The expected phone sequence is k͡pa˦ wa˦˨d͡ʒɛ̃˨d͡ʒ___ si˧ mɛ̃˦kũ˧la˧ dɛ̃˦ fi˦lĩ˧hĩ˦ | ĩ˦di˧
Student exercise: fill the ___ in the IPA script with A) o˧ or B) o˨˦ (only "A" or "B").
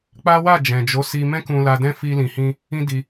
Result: B